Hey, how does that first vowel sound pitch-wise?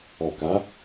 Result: low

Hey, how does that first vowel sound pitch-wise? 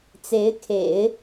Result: rising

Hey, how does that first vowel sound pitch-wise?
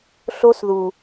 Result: high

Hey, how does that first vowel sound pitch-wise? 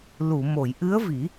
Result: low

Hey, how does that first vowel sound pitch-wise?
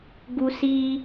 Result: high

